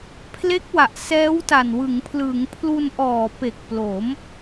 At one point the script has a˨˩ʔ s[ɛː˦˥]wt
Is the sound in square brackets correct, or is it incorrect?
correct